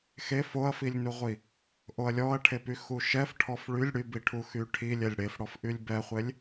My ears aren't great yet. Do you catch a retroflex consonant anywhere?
yes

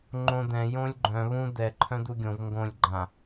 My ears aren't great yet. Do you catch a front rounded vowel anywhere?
yes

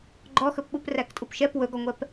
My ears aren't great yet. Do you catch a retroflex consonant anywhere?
no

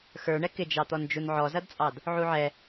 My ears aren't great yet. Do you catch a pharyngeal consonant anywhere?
yes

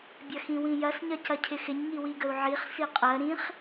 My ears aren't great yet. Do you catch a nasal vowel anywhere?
yes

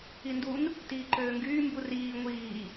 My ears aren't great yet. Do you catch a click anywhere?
yes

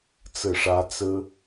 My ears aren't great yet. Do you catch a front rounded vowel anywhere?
no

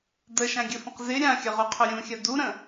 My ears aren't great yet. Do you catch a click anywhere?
no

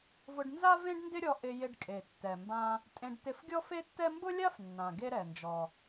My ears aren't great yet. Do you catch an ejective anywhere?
yes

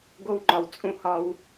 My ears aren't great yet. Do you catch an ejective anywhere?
yes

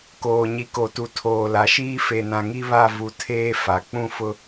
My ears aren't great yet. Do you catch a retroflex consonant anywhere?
no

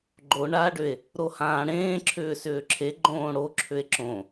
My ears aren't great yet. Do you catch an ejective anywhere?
no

